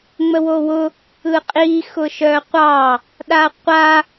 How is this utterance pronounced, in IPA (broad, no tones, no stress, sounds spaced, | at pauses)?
ŋ͡m ə w o w ʊ | ɯ qʼ i x ʊ ʃ œ qʷ ɑ | ɗ a qʷ a